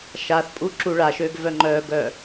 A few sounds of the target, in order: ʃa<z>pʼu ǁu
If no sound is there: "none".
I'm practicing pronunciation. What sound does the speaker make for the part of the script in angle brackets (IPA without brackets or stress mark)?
θ